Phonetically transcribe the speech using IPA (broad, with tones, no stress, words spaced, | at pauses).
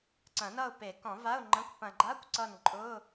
ǀɐ̃˨˩˦nʌ˦˨ʊ̯pe˨˩˦ kɔ̃˨˩˦va˧˥˧ʊ̯ ŋ͡ǃə̃˧˥˧kʷ pɐ̃˨ɡ͡ǃa˧˥˧kʷ ǀʌ˦˨nǃʼʊ˧˥˧